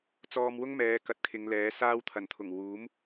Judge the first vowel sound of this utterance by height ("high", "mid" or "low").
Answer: mid